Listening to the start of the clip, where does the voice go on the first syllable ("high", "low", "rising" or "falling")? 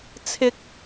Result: high